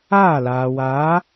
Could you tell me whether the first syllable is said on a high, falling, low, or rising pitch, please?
falling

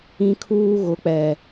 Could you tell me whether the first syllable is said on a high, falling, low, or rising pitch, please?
high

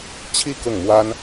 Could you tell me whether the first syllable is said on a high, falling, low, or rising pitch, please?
falling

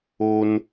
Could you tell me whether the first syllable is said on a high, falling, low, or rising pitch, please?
high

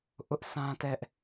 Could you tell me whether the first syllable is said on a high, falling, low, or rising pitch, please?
high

